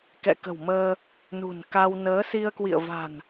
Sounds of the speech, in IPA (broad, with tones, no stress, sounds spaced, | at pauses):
k ɛ̰˧˨ k ə̤˨˩ w m əː˧ | n ṳ˨˩ n k a˧ w n əː˨˦ s i˧ ə̯ k w ḭ˧˨ ə̯ v a̤˨˩ n